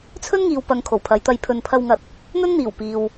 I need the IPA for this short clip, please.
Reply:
t͡sʰ ɵ˥ n ŋ iː˧ w p ɐ˧ ŋ kʰ o˨˩ w pʰ ɐ˨˧ j t̪ ɐ˨ j pʰ ɵ˨ n pʰ ɐ˧ w ŋ ɐ˧ t̚ | n̪ ɵ˥ n n̪ iː˨˩ w p iː˨ w

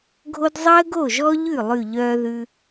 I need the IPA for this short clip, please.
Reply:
ɡʱ o˥ d zˤ əː˥ ɡ o˥˩ ʒ ɔ˥ ʎ ʉ˥˩ lˠ ʉ˥˩ ʎ œː˥ ð ʉ˥

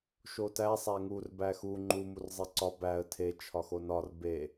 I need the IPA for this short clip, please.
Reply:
ʃ o t æ sˤ æ ŋ u r b æ x u ŋ͡ǃ u m u r zˤ e ǀ ɒ b æ ə̯ tʰ e t͡ʃʰ ɒ x o n ɒ r b e

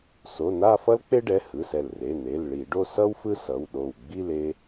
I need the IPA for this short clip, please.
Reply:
s o˩˧˩ n a˥˧ f ʌ˥ l k͡p e˥ ɖ ɛ˩˧˩ h ɯ˩˧˩ s ɛ˧˩ l r e˩˧˩ n e˩˧˩ l ɭ i˧˩˧ ɖ o˥˧ s ʌ˥ w f ɯ˥ s ʌ˩˧˩ w ɗ o˧˩ w ɡ͡b i˥˧ l e˥

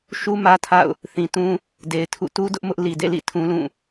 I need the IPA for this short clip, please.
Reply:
ʃ u˦ m ä˦ tʰ a̰˦˨ ʊ̯ | θ ĩ˨ t ũ˦ | d e˨ ɪ̯ tʰ ṵ˦˨ t u˦ d ʊ˦ ʔ m ʊ˦ ʔ l i˨ d ḛ˦˨ l ḭ˦˨ tʰ ũ˦ l ũ˦˨

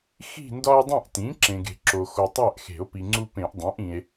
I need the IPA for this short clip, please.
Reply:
x i̤˦˨ n d ɒ˦ e̯ dˤ ĩ˦˨ ʔ t ĩ˩˥ ǁ ẽ˨ ɡ e̤˨ ǁ o˨ x o˨ tˤ æ˦˨ ʔ x e̤˨˩˦ o̯ p i˨ ŋ͡ǀ u˦ p ẽ˨˩˦ ʔ dˤ æ̃˩˥ ʔ ĩ˨ e̯

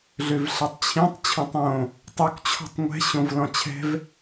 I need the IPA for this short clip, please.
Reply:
ɮ ø v ɬ ɛ tˤ t͡ɕʰ ĩ tˤ t͡ɕʰ õ tˤ õ | tˤ ø k t͡ɕʰ ɔ̤ tˤ ŋʷ ɛ̤ ɕ õ v l ɔ̃ t͡ɕʰ ɛ̤ v

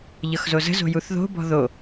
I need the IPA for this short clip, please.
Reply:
ʎ ɤ x z o z ə̤ z o̤ j u θ ð o̤ b ɔ̤ ð o

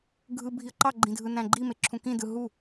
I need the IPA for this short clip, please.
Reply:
ɡʱ ɯ bʱ i ə̯ ǃ ɑ ɡ͡ǃ ĩ dʱ ɯ n æ̃ ɡ͡ǃ i m e ǁʰ ũ k ĩ d ɯ ɦ u

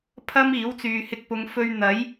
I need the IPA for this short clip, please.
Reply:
pʰ ɐ˥ m iː˨˥ w t͡s yː˨ h ɪ˧ k̚ p ʊ˨˧ ŋ f ɵ˧ ɥ n̪ ɐ˨˥ j

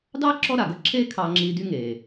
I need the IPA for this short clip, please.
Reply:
d ɑ˥ ǁ ɔ˥ ɾ a˩ ɡ ə˥ ǁʰ eː˥ kʰ ɑ˧ ŋ͡ǁ iː˧ d y˥ ŋ eː˩

